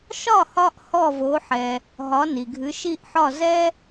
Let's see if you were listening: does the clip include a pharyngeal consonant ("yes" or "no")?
yes